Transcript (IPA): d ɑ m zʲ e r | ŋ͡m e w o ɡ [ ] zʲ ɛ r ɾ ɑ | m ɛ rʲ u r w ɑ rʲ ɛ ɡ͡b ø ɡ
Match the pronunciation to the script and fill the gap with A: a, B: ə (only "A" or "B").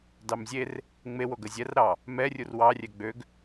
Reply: B